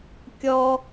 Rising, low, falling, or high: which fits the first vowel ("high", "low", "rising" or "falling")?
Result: high